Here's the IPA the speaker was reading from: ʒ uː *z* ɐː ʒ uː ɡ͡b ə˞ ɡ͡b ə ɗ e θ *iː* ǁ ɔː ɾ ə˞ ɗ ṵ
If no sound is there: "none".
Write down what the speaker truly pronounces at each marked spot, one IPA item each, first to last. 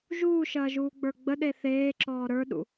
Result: ʃ, eː

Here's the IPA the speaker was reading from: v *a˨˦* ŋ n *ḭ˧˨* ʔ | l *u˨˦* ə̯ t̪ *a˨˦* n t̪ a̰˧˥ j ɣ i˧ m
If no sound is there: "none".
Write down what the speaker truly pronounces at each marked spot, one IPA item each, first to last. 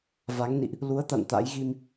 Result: a˨˦, ḭ˧˨, u˨˦, a̰˧˨

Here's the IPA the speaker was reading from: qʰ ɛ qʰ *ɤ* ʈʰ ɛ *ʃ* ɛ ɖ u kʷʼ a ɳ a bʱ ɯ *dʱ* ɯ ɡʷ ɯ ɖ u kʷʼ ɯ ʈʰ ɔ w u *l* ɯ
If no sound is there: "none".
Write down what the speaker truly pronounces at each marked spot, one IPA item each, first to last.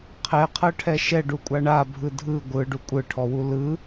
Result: ɤ, ʃ, dʱ, l

